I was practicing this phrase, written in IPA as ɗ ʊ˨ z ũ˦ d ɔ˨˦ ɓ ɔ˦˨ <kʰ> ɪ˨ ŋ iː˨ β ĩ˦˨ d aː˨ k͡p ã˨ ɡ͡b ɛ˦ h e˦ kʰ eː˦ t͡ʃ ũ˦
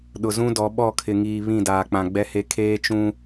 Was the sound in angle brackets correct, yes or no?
yes